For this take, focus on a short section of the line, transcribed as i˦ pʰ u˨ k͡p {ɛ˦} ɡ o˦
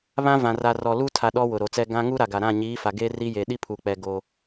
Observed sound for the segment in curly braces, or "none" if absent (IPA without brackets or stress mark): ɛ˨